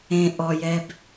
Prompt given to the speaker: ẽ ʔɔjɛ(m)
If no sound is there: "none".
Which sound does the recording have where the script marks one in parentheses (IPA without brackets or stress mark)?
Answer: b